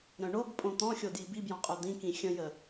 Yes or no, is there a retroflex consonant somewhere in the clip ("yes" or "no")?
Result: yes